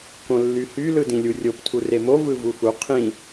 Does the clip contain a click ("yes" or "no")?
no